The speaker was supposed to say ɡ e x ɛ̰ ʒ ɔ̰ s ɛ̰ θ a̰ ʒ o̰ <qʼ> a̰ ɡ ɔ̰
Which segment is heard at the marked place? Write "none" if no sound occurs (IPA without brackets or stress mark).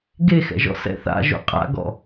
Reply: qʼ